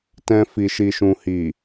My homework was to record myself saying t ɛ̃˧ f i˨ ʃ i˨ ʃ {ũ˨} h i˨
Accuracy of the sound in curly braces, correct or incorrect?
correct